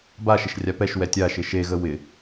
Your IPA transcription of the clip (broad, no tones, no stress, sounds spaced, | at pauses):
b a ʃ ɪ ʃ rʲ a p ɛ ʃ w ɛ tʲ a ʃ ɪ ʃ e ɣ ə w ɪ